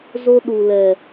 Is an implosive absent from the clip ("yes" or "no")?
no